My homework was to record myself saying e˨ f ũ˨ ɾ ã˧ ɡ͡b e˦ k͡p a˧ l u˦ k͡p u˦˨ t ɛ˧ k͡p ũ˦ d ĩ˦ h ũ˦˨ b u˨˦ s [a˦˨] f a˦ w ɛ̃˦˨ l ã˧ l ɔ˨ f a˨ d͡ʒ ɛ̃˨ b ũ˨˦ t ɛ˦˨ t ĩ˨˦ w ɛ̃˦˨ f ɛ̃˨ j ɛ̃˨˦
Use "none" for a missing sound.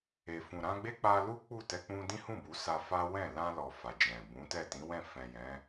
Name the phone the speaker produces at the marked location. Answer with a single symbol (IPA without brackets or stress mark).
a˧